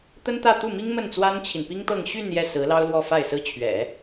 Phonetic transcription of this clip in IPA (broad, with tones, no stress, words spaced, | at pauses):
t̪ə˥n t̪ä˥˧ t̪u˥˩mi˥ŋ mə˥˩nt͡swa˥nt͡ɕʰi˨n pi˥ŋt̪ɤ˥˧ŋ ɕy˥˧n jɛ˥˩sɹ̩˧˥lɑ˥ʊ̯lwɔ˥˧ fa˥˩ɪ̯sɹ̩˥ t͡ɕʰɥɛ̰˨˩˦